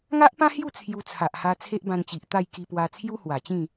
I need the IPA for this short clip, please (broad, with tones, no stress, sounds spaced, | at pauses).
ŋ a˦ ʔ p ã˦ h j u˥˧ t͡sʰ j u˧ t͡sʰ a˨ ʔ h a˧ t͡sʰ e˦ ʔ b ã˧ n t͡ɕ i˨ ʔ t̪ a˥˧ j k i˧ p w a˧ t͡sʰ j u˦ h w a˨˩ t͡ɕ ĩ˥˧